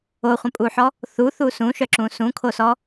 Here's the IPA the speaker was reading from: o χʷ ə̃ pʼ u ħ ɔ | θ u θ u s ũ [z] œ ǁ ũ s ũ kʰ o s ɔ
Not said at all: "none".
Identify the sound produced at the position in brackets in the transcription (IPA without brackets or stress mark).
ʃ